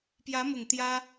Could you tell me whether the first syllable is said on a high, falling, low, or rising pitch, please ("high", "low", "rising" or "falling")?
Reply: rising